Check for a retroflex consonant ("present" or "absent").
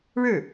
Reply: present